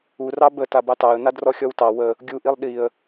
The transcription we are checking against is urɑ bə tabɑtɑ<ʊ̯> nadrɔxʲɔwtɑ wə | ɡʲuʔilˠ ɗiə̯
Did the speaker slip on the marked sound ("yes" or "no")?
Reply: yes